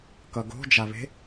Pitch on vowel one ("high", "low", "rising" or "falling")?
low